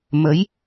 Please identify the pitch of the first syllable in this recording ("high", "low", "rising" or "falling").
rising